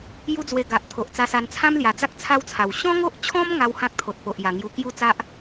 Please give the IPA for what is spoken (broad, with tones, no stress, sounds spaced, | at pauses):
j u˦ d͡z w e˧ ɡ a˨ ʔ t̪ʰ o˨ ʔ t͡s a˧ s a˧ n t͡sʰ ã˦ m l j a˨˩ d͡z a˦ k̚ t͡sʰ a˦ w t͡sʰ a˨˩ w ɕ ɔ̃˦ ŋ o˦ ʔ t͡ɕʰ ɔ̃˦ m ŋ a˦ w h ã˦ k̚ t̪ʰ o˨ t̚ p o˨ ʔ j a˨˩ ŋ j u˧ k j u˥˧ t͡s a˦ ʔ